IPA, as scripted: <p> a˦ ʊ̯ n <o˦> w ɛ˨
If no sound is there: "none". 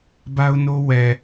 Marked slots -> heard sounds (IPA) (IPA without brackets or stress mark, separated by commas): b, o˦